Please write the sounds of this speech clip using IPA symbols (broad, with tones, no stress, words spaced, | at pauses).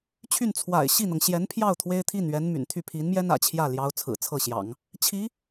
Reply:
t͡ɕʰy˥˩n t͡sʰwa̰˨˩ɪ̯ ɕi˥˩n̪ɤ˩ŋ ɕjɛ˧˥npʰjɑ˥˩ʊ̯ t̪ʰwe˥ɪ̯t̪ʰi˥˩n ɥɛ˧˥nmy̰˨˩nt̪ʰy˥˩ pʰi˧˥nmjɛ˥n ä̰˨˩t͡ɕʰjä˥˩ ljɑ˧˥ʊ̯ t͡sʰɹ̩˨˩t͡sʰɤ˥˩ɕjɑ̰˨˩˦ŋ | t͡ɕʰi˧˥